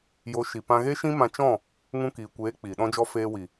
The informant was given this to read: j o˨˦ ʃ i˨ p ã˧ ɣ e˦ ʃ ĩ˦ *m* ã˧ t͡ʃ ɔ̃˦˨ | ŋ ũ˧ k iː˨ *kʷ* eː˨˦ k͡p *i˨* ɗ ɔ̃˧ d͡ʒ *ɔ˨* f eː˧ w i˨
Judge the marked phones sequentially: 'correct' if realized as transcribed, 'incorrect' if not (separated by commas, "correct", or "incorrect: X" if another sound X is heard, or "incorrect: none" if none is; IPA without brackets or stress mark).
correct, correct, correct, incorrect: ɔ˧